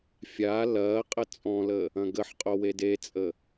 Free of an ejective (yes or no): no